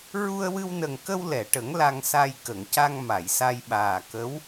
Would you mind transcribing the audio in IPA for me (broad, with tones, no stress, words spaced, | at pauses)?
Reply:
ɹu˧ə̯wɨ˧wnə˨˩ŋkə˧w lɛ˨˩˨ʈə˨˩˦ŋ la˧ŋsa˧j kə˨˩˨ŋca˧ŋ ma˨˩˨jsa˧jɓaː˨˩ kə˧˥w